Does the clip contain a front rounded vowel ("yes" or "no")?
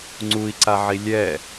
no